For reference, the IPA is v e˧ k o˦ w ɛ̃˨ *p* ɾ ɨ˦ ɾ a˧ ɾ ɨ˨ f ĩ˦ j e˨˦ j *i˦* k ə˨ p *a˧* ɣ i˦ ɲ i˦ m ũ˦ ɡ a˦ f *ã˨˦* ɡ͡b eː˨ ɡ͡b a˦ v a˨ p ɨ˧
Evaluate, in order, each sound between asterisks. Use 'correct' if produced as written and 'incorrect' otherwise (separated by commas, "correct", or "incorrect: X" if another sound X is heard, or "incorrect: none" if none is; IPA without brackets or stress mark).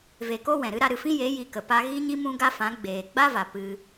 incorrect: none, incorrect: i˧, correct, correct